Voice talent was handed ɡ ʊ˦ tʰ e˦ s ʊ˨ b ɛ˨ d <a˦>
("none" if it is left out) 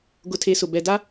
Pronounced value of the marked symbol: a˦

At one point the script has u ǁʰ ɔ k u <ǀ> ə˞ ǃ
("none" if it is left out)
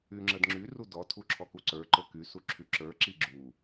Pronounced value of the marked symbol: ǀ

